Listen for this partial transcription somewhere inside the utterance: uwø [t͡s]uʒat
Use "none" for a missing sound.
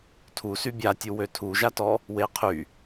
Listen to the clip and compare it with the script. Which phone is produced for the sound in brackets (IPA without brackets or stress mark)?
tʰ